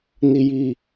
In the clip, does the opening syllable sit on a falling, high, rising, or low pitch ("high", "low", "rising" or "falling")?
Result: high